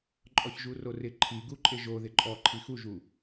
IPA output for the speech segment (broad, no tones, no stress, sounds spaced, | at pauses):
ǃʼ ɔ ç ʒ u r o r ɪ ǃʰ i ɡ u ǃʼ ɪ ʒ o ð ɪ ǃʼ ɔ ǃʰ i x u ʒ u